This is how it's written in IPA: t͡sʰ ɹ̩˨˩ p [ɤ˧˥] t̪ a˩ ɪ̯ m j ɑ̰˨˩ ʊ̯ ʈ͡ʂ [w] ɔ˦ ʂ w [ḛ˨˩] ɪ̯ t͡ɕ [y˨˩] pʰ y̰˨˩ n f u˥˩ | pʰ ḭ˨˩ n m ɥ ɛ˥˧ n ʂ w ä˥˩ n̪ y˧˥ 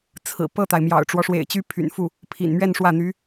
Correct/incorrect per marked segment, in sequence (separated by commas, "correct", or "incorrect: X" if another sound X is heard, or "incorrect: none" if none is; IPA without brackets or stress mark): incorrect: ɤ˥˩, correct, correct, incorrect: y˥